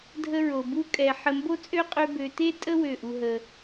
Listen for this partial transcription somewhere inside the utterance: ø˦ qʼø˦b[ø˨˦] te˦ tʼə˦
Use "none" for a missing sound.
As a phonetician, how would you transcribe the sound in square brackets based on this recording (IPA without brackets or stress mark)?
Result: ø˧